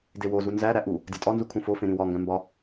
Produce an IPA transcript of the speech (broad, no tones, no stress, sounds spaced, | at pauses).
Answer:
d e w o z u n z æ ɾ æ ʔ u | dʲ ɒ tʼ ɒ n z u kʰ ũ f o f ẽ ɾ ĩ w ɒ ŋ ɡ æ̃ m b ɒ